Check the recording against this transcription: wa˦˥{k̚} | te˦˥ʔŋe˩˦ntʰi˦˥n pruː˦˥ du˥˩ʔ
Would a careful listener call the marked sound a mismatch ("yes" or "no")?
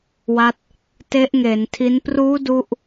yes